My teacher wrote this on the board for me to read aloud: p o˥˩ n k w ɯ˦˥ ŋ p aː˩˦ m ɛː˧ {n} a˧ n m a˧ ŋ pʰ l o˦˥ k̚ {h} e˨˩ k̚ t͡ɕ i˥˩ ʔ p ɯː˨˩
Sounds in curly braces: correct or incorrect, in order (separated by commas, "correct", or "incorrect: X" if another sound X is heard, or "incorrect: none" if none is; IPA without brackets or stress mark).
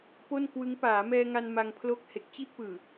incorrect: ŋ, correct